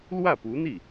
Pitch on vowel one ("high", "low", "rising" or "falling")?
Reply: falling